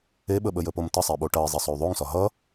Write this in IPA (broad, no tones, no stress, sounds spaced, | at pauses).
e ɓ ə ɓ ə j ə p o m t ə sˤ e ɓ o ʈ ʌ i̯ zˤ e sˤ o y̯ ðˤ o ŋ s ɒ ɦ ʌ